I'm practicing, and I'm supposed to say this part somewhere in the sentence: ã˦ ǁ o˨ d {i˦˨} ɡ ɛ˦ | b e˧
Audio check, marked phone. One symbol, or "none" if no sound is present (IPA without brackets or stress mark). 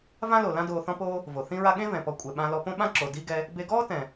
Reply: i˦